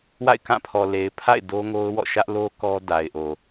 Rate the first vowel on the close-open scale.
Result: open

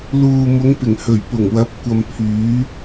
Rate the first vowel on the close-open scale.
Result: close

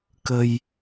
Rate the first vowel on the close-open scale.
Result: mid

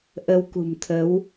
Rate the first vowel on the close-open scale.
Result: mid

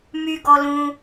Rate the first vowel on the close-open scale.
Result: close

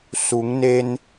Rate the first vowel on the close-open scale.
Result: close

